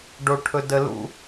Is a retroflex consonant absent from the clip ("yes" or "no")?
no